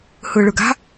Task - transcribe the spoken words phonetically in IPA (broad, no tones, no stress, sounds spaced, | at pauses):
h ɯː ɭ ɯ ɡ a̤